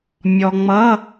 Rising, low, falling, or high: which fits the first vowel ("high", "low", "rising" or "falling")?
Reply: low